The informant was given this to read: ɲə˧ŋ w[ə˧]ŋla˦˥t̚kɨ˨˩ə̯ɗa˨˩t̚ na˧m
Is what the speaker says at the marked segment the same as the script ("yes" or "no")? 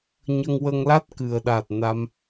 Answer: yes